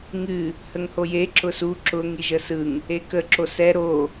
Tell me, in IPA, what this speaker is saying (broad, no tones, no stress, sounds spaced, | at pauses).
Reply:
ŋ ɨ | h ə ŋ h o j e ǁ ʊ s u ǁ ʊ ŋ i ʒ ə s ɯ ŋ | e k ə ǁ o s ɛ ɾ o